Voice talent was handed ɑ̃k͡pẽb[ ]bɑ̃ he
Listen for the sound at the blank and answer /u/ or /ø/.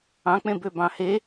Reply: ø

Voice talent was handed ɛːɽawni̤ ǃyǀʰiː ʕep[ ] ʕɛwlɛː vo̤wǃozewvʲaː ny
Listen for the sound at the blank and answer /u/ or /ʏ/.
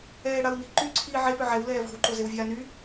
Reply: ʏ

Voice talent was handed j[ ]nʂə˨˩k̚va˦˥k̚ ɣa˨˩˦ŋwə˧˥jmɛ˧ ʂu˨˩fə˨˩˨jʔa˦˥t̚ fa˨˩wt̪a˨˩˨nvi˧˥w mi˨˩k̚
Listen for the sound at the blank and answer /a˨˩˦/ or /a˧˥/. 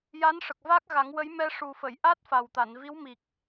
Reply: a˧˥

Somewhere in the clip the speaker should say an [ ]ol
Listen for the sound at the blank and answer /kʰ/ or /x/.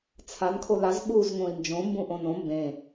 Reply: kʰ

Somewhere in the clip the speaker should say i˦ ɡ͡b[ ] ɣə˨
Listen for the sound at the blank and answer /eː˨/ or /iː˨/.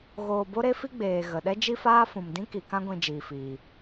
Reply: eː˨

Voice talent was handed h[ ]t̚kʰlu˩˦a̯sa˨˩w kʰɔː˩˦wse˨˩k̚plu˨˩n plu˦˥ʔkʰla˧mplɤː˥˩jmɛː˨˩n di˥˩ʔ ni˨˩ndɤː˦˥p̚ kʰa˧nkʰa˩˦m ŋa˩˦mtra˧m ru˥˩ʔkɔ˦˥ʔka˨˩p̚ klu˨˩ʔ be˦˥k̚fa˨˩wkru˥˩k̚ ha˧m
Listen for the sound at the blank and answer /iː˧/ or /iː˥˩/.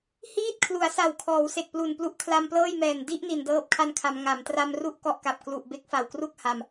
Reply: iː˥˩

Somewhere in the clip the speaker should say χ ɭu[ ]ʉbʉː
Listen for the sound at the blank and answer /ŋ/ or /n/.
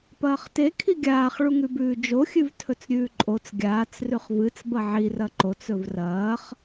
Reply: ŋ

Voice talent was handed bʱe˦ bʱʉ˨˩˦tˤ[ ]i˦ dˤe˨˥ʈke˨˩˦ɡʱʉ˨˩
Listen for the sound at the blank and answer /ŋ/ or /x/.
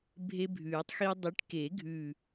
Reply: x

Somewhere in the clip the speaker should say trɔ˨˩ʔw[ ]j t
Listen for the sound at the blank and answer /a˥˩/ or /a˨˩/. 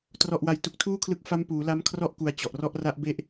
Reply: a˨˩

